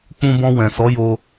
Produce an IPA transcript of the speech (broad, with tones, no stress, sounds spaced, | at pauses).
k͡p ũ˧ b ɔ̃˧ w ɛ̃˨ s ɔ˨˦ j o˧